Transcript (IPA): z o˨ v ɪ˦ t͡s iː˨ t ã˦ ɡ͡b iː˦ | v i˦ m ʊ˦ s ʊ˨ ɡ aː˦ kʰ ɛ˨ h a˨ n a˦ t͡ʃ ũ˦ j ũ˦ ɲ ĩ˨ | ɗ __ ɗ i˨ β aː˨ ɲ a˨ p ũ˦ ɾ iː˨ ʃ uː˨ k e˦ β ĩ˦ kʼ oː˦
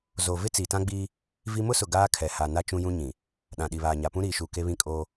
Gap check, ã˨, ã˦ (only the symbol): ã˨